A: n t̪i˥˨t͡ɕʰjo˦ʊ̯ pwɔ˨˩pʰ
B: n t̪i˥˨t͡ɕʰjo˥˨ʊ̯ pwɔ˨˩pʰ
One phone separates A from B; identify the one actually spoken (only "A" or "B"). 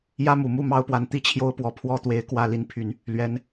A